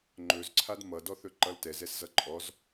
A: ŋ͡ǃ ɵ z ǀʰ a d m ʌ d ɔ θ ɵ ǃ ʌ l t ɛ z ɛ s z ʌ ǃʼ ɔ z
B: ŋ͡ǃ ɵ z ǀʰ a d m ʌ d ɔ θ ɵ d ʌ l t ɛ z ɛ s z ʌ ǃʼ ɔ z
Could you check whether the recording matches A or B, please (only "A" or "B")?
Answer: A